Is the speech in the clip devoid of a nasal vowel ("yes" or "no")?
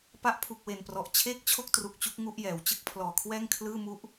yes